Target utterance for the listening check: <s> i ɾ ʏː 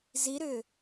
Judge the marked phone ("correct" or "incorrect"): incorrect